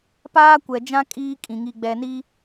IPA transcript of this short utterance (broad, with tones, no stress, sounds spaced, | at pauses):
p aː˦ kʷ ɛ˨ d͡ʒ ã˦ kʼ iː˦ kʼ ĩ˨ ŋ i˨ ɡ͡b ɛ˨ n i˦